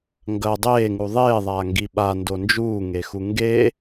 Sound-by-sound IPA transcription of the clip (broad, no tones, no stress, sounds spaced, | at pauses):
ŋ ɡ ɐ dˤ eː ŋ u ðˤ eː ðˤ a ŋ ɡ i ɓ a n d o n d͡ʒ uː ŋ e x u ŋ ɡ e